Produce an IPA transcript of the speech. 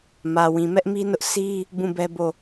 m ä˨ w ĩ˨ m ɛ˦ ʔ m i˦ n ʊ˦ ʔ sʰ i˦ | b ũ˦˨ b ɛ˦ b o˦˨

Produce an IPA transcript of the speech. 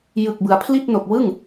j ɯ˨˩ k̚ b ɯ˩˦ a̯ pʰ l i˥˩ t̚ n o˨˩ k̚ w ɯ˥˩ ŋ

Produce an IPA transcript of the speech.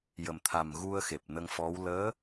j ə˨˩ m t̪ʰ a˨˩ m ɣ u˧ ə̯ x e˨˩ p̚ n ə˧ ŋ f ɔ˧˥ w l əː˧˥

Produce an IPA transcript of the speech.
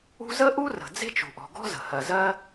ṳ˥ z ə˥ ʔ u˥ r ə̤˩ d͡z e̤˥ t͡ʃ ṳ˩ ʔ ɔ̤˩ ɡ ɔ̤˥ z ə̤˩ h ɜ˩ z ɜ˥

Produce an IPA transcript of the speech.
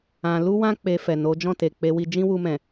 ã˧ l u˦ w ã˦ k͡p e˧ f ɛ˨ n o˨˦ d͡ʒ ɔ̃˦˨ t e˨ k͡p e˧ w i˧ d͡ʒ ĩ˦ w u˧ m ɛ̃˨

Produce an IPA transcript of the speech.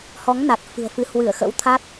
h ɔ˨˦ ŋ n a˨˩ t̚ f ɨ̤˨˩ ə̯ f ɨ˨˦ h w ɨ˧˩ ə̯ x ə̰˧˥ w t̪ʰ a˦˥ t̚

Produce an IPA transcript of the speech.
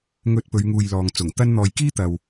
ŋ ɵ˧ t̚ p ɵ˨˧ ɥ ŋ uː˧ j l ɔː˨ ŋ t͡s ʊ˨˩ ŋ t̪ ɐ˥ n n̪ ɔː˧ j k iː˥ t̪ ɐ˨ w

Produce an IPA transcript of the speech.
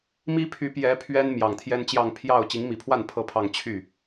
m i˥ pʰ y˧˥ p j ɛ˧˥ pʰ ɥ ɛ˥ n m j ɑ˨˩ ŋ t̪ʰ j ɛ˥ n t͡ɕ j ɑ˥˧ ŋ pʰ j ɑ˥˩ ʊ̯ t͡ɕ i˧˥ ŋ m i˨˩ pʰ w a˥˩ n pʰ ɤ˥ pʰ ɑ˥˧ ŋ t͡ɕʰ y˥˩

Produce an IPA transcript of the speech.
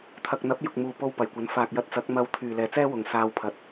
t̪ʰ ɐ˨ k̚ n̪ ɐ˨˥ p̚ j ʊ˧ k̚ m uː˨˩ p o˧ w p ɐ˨˩ j kʷ ɐ˨˥ n f aː˧ k̚ j ɐ˥ t̚ t͡s ɐ˨˥ k̚ m ɐ˧ w t̪ʰ yː˨ l ɛː˨˧ t͡s ɛː˥ w ʊ˨ ŋ s aː˧ w pʰ ɐ˨ t̚

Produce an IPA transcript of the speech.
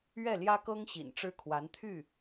ɥ ɛ˥˩ l j ä˥ k ɤ˥ ŋ ɕ ḭ˨˩ n ʈ͡ʂ ɻ̩˥ kʰ w a˧˥ n t̪ʰ y˥˩

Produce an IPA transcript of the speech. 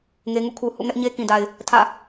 ŋ e˨ ŋ ṵ˦˨ kʰ u˨ h ṵ˦˨ ŋ ɛ˦ ʔ ɲ e˦ k ĩ˨ d a˨ ɪ̯ | tʰ ä̰˦˨

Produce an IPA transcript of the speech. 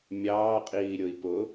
mʲ ɑː qʼ iː ɾʲ ʊ i̯ p ʊ

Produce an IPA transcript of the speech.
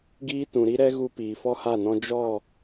ɡ iː˦ t ũ˨ ɾ i˦ ɾ ɛ˦ ɣ u˧ p iː˨ f ɔ˦ h a˦˨ n ɔ̃˦ d͡ʒ ɔ˦˨

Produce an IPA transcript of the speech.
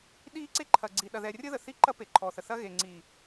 ɗ iː˦ ǀ e˦ ǃʰ ɐ˨ ɡ͡ǀ i˨ ɗ ɐ˨ ð ɛ˨ rʲ əː˦ ð ə˨ θ i˦ ǃ ɐ˦ p e˨˦ ǃʰ ɔ˨ θ ə˨ θ ɐ˦ ɣ e˨ ŋ͡ǀ iː˨

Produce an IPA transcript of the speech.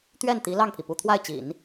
t̪ ɥ ɛ˥˩ n t̪ i˧˥ l ɑ˥˩ ŋ pʰ i˩ p u˧˥ t̪ʰ w a˥˩ ɪ̯ t͡ɕ ḭ˨˩˦ n

